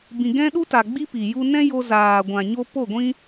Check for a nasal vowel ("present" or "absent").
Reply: present